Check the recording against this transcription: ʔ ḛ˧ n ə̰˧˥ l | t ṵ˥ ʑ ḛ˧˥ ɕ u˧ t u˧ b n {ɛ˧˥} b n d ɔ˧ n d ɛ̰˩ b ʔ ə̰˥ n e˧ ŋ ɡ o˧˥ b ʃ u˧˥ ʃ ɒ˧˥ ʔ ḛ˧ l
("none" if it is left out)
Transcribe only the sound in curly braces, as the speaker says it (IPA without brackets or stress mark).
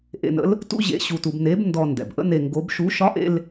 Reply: e˧˥